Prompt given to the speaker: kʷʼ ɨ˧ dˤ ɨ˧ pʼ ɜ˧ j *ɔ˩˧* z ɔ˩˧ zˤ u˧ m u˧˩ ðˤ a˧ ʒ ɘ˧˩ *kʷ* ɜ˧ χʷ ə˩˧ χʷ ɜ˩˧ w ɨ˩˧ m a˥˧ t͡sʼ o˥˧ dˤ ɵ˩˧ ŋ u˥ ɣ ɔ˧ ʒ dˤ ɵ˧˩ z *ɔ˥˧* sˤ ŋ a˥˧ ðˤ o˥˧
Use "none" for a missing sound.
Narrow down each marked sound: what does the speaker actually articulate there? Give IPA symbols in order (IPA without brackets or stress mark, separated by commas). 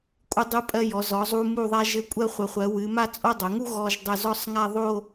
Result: ɔ˩˧, kʷʼ, ɔ˥˧